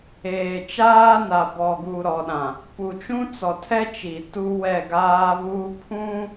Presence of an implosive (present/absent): present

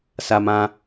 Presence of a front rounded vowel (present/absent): absent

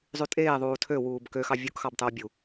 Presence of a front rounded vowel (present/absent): present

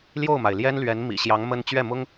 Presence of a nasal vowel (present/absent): absent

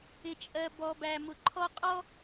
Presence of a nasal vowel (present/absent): absent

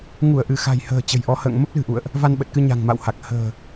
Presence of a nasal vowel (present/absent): absent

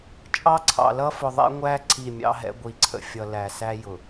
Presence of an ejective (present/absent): present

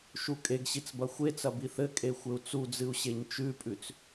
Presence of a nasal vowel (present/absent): absent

